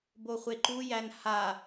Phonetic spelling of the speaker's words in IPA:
b o χʷ e ǃ u j æ n h a

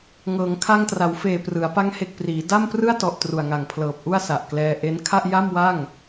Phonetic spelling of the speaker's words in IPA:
ŋ ɤː˩˦ ŋ kʰ a˧ ŋ t r a˩˦ w f eː˨˩ p r ɯ˩˦ a̯ p a˦˥ ŋ h e˨˩ k̚ p r iː˩˦ d a˥˩ m p r ɯ˥˩ a̯ t ɔ˨˩ ʔ t r u˨˩ a̯ ŋ a˨˩ ŋ pʰ l ɤː˨˩ p̚ ʔ u˥˩ a̯ s a˨˩ ʔ k l ɛː˧ ʔ e˦˥ n kʰ a˥˩ ʔ j a˥˩ m w a˥˩ ŋ

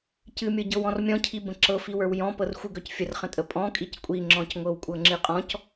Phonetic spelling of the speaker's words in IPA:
c ɨ mʲ ɤ ɟ ɤ w ɔ̃ r mʲ ɔ̃ cʰ i b ə̃ ǁ ɤ f i w ə˞ w j ɔ̃ p ɤ r xʷ ɨ ɡ œ c fʲ ə r χ ə̃ tʼ ə pʼ ɔ̃ kʼ i c kʷʼ i ŋ͡ǁ ɔ̃ c ŋʷ ɤ w kʷʼ ɤ ŋ͡ǁ ɨ qʼ ɔ̃ c

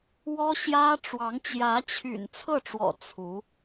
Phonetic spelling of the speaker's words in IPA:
w ɔ˥ ɕ j ä˥ ʈ͡ʂ w ɑ˧˥ ŋ t͡ɕ j ä˧˥ t͡ɕʰ y̰˨˩ n t͡sʰ ɤ˥˩ ʈ͡ʂ w ɔ̰˨˩ t͡sʰ u˧˥

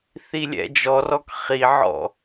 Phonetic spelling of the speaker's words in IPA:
θ i lʲ ɛ̰ d͡ʒ ɔ r ɔ k χ i ʕ ɔ̰

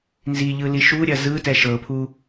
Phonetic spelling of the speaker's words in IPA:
n z i ʎ ɯ l i ʃ u ɾʲ ɐ z ɯ t ɛ ʃ ɤ pʰ u

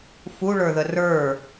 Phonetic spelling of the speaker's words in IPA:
f u ɭ ə˞ ð ə r ə˞

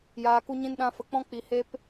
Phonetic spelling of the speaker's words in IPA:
j aː˨ k u˧ ɲ ĩ˧ n ɗ ã˧ f ə˨ k͡p ɔ̃˧ k͡p i˨ h e˦ p

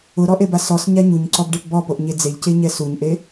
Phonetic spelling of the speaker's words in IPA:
ʊ ɾ ɔ ʔ e b a s ɔ s ɲ a ɲ u ɲ ǀ ɔ b ɖ e p b ɔ p o ʔ ɲ e d͡z e ʎ c e ɲ ɛ s u ɲ ʔ e

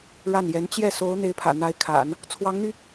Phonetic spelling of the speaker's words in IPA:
ɻ a˥˩ n j ɛ˧˥ n t͡ɕ j ɛ˥˩ s o˧˥ ʊ̯ n̪ e˧˥ ɪ̯ pʰ ä̰˨˩ n̪ a˧˥ ɪ̯ kʰ a̰˨˩˦ n | t͡sʰ w ɑ˧˥ ŋ n̪ y˧

